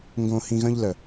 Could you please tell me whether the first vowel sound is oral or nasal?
nasal